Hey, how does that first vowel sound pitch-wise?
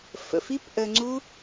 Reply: low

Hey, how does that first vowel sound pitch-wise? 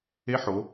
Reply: rising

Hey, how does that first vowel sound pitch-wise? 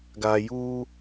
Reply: low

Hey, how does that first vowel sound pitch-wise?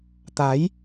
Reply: rising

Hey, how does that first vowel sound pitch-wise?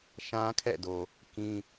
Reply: high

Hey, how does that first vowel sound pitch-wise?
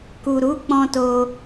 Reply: low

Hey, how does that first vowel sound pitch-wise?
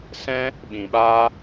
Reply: high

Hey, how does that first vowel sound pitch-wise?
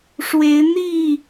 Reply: rising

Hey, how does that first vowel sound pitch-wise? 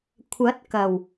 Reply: rising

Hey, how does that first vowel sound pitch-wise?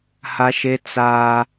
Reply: high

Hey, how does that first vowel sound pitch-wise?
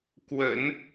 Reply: low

